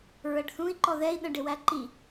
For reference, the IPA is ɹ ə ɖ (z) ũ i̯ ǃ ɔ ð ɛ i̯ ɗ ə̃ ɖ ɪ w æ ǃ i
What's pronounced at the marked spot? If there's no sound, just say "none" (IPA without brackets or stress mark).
θ